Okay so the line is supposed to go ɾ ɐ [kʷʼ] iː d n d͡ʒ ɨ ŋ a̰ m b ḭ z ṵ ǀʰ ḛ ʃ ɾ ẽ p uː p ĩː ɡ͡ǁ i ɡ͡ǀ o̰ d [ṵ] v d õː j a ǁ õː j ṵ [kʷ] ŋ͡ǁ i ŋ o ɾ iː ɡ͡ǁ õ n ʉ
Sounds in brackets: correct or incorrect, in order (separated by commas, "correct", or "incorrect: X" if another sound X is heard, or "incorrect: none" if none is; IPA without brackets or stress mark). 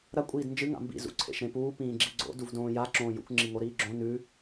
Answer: correct, incorrect: u, correct